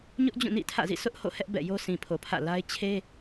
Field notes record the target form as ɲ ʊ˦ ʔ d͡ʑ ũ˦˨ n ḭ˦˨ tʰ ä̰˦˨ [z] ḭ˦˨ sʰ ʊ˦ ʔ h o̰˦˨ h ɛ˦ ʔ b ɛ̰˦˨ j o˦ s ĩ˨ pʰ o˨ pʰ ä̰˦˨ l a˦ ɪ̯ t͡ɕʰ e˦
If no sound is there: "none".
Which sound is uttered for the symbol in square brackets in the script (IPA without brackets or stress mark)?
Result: z